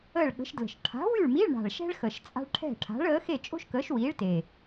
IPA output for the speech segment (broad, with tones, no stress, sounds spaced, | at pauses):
əː˥˨ ɭ ɠ ə̤˨˥ ʃ d l ə̤˨˩ ʃ ʈʰ a̤˨˥ w y˥˨ ɭ m i˧˥˧ ɭ ɳ a̤˨˩ ɭ ʃ ɛ̤˥ ɭ x ə˨˩ ʃ t͡sʼ a̤˥ ɭ ʈʰ ɛ̤˥˨ ʈʰ a̤˨˥ ɭ əː˨˥ x e˥˨ t͡ʃʼ o̤˥ ʃ k əː˨˥ ʃ w iː˨˥ ɭ t e˨˩